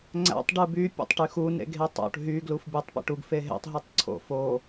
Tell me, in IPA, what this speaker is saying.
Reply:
ŋ͡ǀ æ̰ tˤ ɖ ɯ b y pʲ o̰ tˤ ʈ y x u n ḛ ɡ ɦ e tˤ o̰ ʈ ɦ y ɡ l u f bʲ æ tˤ p ḛ ʈ u ɡ f e ɦ ḛ tˤ ɦ u tˤ ǀʰ o̰ f o

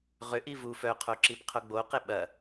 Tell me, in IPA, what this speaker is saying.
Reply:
ʁ ʏ ʔ i v u f œ qʰ o ǁ i p qʰ o ɡ͡b o q e ɓ ɐ

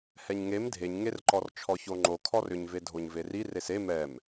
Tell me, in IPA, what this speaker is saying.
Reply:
h ɛ ɲ ŋ e m dʱ e ɲ ŋ e r ǃ ɔ r t͡ʃʰ ɔ ç o ŋ͡ǃ o kʰ ɔ r ʏ ɲ v e dʱ o ɲ v e r i r e s e m ɛ m

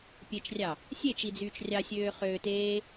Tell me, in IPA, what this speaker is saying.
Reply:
pʲ e t͡ʃ rʲ ɑ | sʲ e t͡ʃ i d͡z yː t͡ʃ rʲ ɑ sʲ øː χ øː t eː

